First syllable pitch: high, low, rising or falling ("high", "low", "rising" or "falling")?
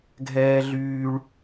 high